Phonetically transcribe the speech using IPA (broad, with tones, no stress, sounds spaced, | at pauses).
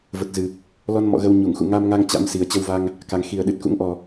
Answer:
v ə˨˩ t̚ z ɨ˨˩ | l ɔ˧ n m ɔ̰˧˨ ɣ ə˧ w ɲ u˧˩ ŋ x ṵ˧˨ ŋ a˧ m ŋ a˧ ŋ t͡ɕ a̰˧˥ m s i˨˩ ə̯ t͡ɕ ə˧ w v a˧ ŋ | k a˨˩ ŋ x i˨˩ ə̯ ɗ ɨ˨˩ t̚ k ṵ˧˥ ŋ ʔ ɔ˨˩